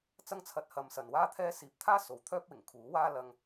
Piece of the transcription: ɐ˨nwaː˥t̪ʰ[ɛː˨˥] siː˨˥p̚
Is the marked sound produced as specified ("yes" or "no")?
no